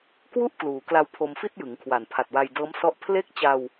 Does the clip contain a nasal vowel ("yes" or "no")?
no